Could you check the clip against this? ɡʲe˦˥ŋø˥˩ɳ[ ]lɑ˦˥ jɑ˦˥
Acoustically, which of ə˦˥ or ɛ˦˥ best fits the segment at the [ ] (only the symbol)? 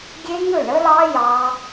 ə˦˥